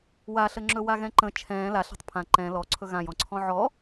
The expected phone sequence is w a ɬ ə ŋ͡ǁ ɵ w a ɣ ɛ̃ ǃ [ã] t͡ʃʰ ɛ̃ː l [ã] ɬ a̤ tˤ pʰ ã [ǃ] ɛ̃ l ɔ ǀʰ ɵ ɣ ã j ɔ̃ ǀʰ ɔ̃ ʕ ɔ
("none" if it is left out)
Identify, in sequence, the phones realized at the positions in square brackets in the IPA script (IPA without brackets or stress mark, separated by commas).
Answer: ə̃, a, ǃ